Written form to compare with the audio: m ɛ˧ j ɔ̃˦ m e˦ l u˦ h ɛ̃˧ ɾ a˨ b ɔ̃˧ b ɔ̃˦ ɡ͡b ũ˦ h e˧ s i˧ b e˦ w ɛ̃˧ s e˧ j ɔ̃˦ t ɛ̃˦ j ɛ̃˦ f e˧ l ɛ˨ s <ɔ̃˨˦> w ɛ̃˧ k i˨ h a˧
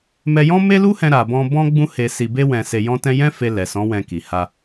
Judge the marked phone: correct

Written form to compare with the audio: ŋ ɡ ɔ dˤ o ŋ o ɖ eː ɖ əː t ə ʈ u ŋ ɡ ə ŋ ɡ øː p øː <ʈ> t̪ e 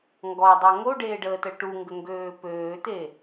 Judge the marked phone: incorrect: none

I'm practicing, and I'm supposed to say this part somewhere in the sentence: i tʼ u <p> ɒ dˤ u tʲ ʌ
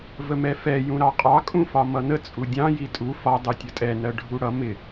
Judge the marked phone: incorrect: f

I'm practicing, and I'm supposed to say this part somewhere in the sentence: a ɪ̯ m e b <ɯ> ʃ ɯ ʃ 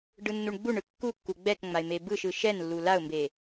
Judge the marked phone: correct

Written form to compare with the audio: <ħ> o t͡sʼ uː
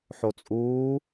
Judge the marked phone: correct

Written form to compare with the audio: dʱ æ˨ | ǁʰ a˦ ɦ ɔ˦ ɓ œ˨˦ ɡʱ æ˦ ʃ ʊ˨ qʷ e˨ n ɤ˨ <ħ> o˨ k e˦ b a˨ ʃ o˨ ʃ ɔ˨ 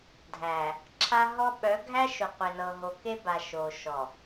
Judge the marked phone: incorrect: ɦ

